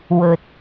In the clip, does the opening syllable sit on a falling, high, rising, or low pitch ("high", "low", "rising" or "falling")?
low